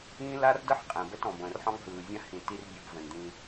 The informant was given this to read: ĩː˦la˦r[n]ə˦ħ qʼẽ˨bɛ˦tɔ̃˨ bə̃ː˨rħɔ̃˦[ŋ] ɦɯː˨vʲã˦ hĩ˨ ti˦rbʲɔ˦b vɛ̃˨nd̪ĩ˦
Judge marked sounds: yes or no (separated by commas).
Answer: no, yes